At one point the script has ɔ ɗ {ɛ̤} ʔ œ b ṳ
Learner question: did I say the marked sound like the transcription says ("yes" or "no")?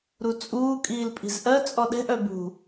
yes